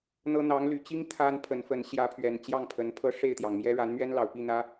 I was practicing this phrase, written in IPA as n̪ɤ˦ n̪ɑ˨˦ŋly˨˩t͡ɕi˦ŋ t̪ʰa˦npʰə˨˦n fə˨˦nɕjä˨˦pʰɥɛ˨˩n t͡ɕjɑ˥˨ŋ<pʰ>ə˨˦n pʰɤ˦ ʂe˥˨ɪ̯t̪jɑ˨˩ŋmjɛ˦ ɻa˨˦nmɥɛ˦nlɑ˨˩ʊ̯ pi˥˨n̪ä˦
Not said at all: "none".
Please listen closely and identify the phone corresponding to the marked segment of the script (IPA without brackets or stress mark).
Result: pʰ